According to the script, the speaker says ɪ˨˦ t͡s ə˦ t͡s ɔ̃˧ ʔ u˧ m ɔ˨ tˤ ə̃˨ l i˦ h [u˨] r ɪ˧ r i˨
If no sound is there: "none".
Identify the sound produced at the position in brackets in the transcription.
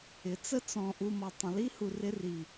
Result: u˨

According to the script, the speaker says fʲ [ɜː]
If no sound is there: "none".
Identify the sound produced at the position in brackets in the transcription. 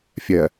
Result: ɜ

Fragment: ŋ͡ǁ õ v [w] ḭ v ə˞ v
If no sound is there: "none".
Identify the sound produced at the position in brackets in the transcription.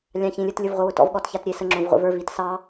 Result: ʁʷ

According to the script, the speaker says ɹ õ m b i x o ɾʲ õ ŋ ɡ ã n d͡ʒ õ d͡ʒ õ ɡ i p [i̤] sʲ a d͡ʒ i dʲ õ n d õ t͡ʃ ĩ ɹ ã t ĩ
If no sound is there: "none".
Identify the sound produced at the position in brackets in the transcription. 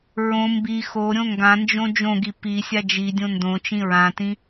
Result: i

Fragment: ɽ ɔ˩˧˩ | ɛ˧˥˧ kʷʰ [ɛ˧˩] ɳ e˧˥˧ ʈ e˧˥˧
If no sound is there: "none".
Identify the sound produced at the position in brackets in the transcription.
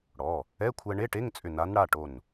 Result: ɛ˧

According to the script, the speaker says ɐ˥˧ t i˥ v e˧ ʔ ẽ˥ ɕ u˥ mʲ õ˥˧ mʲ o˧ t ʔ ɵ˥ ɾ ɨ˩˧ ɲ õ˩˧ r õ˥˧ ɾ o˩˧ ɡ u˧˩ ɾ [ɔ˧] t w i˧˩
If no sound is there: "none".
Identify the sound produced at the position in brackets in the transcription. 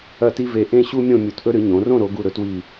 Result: ɵ˧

